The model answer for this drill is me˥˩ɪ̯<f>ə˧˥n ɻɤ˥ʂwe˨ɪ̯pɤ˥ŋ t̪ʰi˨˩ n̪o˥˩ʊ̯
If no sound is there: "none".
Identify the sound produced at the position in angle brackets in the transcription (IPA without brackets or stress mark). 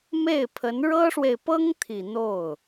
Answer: pʰ